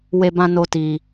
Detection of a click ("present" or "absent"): absent